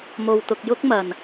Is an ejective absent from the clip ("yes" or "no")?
yes